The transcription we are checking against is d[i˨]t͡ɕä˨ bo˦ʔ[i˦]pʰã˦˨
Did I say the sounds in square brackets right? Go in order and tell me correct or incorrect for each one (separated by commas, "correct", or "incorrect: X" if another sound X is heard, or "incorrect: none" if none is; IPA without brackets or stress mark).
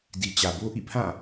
correct, incorrect: ḭ˦˨